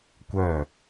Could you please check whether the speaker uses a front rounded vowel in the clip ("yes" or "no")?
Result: yes